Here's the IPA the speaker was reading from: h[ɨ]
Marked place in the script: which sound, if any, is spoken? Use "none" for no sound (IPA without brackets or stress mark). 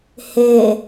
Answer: e